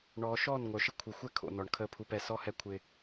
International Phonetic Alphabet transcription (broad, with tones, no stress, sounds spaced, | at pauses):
ɳ ɔː˨ ʃ ɔː˦˨ n ŋʷ œ˨ ʃ ɪ˦ kʷʰ ɪ˨ xʷ ɛ˦ kʰ o̰˨ n ɔ˨ ɳ kʰ əː˦ pʰ u˦ p ɛ˦ s ɔ˦ h ɛ˦ kʷʰ ɪː˦